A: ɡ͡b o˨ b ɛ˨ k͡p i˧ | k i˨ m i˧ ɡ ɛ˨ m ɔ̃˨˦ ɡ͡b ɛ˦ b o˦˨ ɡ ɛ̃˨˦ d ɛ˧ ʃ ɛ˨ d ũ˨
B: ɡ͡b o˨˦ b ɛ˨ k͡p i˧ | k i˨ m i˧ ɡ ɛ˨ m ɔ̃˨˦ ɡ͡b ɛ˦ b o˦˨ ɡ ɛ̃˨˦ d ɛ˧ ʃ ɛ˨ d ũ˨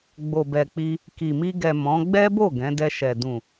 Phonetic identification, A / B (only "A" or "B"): A